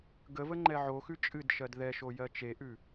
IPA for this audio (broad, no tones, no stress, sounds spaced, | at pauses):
ɡ ə v ə ŋ͡ǃ ɛ ʕ o x ʉ t͡ʃʼ ɨ d ʃ ɜ d ð ɛ ʃ o j ɜ t͡ʃ e ʔ ʉ